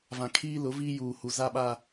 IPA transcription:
vã˨kʰiː˦lʊ˨˦viː˦ juː˨hu˨ za˦ɓa˦

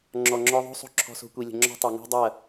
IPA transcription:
ŋ͡ǁɔ˨ŋ͡ǁɔ˧ ðˤo̤˦ sˤo̤˦ ǁʰɔ̤˧so̤˧kʷi˨lʲə̤˨ ŋ͡ǁɔ̤˦tˤo˨ ŋo̤˦dˤɐ˦˨

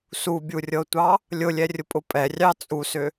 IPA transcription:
subʲurʲɤtʷɑ | lʲʊlʲɛrʲʊpʼʊ pʼɛrʲɑ t͡sʼusʏ

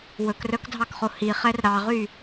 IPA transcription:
wɵkrœkdʱɑkχo hiχɛr ɾɑʁy

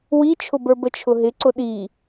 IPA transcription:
wit͡ʃʰʊbə˞ bət͡ʃʰʊɦɪ ǀʊɗi

